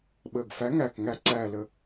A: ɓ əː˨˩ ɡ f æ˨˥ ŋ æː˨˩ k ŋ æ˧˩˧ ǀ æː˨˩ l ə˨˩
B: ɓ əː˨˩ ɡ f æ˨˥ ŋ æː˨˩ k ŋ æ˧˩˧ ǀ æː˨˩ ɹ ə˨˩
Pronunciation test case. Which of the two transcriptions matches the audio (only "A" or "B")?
A